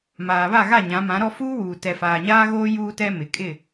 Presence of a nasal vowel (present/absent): present